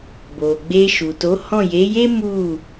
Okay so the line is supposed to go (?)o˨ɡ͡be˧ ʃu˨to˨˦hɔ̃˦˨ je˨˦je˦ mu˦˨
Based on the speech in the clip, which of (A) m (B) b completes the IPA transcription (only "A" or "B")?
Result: B